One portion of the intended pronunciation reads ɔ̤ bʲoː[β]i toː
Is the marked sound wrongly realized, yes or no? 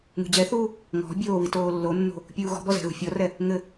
no